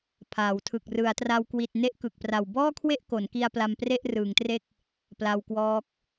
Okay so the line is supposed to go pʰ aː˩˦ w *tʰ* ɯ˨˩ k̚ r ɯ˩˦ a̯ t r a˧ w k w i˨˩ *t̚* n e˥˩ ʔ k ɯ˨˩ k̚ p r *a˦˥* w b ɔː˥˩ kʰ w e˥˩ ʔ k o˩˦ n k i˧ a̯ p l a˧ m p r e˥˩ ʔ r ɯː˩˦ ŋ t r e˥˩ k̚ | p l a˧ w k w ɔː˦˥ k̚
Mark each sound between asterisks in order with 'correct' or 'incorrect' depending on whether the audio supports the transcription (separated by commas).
correct, correct, incorrect